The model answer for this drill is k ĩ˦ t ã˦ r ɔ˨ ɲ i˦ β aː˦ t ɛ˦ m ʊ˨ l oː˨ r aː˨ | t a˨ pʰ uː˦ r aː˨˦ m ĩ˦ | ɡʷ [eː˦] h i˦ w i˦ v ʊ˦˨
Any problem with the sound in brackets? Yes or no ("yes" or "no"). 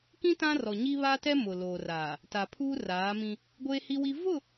no